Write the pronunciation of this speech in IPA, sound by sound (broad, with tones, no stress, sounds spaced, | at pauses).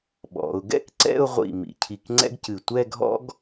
ɓ ɔ̰˩˧ ʊ̯ ɡ ɛ̰˥ k ǀ ɛ̰˥˧ ʊ̯ ʁʷ ḭ˧˩ m ḭ˧˩ cʰ i˧˩ k ŋ͡ǀ ɛ̰˥ ɡ c ɨ˧˩ tʷ ɛ˥˧ ɡʱ ɔ̰˥ ɡ